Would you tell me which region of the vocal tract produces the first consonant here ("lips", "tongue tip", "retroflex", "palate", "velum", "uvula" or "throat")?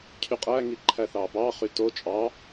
palate